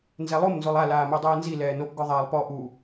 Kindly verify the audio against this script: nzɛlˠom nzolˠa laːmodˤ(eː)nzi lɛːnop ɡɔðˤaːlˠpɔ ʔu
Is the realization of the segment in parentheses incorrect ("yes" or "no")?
yes